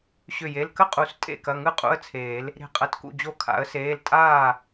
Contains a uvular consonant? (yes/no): yes